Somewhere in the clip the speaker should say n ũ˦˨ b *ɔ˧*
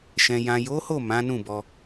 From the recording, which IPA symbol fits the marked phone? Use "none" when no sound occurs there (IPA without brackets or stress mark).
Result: ɔ˧